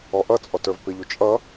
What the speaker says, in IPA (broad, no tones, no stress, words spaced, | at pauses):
ɔʔʌt͡sʼɔt ə˞vpɪʎu t͡ʃʼʌ